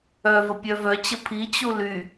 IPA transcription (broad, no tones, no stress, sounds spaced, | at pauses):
œ v ə pʲ œ v œ t͡ɕ ə pʰ i t͡ɕ u l y